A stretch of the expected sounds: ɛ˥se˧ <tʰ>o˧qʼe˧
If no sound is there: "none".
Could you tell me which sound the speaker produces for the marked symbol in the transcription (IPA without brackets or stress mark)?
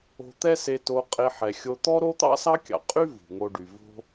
t